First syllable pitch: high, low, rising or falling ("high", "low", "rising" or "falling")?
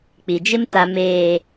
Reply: low